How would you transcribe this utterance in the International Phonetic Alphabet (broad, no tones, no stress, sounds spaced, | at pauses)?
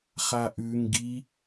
χ a ʔ ʉ ŋ ɡ i